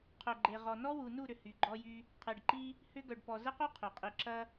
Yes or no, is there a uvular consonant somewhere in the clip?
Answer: yes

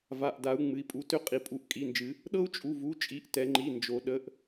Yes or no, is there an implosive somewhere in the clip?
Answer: yes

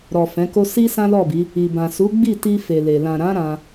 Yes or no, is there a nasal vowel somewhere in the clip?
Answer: yes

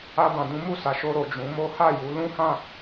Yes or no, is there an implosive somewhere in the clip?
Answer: no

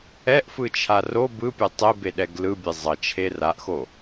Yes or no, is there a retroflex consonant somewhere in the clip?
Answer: no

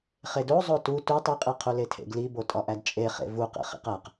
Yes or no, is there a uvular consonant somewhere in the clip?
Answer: yes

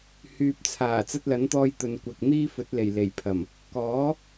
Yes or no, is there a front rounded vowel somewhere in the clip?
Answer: yes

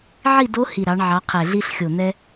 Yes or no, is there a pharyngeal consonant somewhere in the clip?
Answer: yes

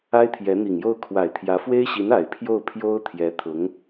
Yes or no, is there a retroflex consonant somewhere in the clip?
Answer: no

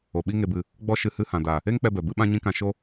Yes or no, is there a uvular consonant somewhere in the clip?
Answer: no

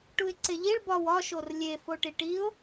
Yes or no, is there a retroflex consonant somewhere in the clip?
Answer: yes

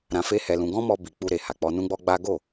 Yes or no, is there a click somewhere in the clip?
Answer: no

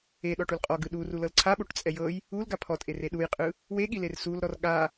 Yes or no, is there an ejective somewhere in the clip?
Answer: yes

